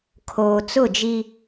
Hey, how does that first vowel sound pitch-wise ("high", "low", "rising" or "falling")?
low